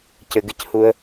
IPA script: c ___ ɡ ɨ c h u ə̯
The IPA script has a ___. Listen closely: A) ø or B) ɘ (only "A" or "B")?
B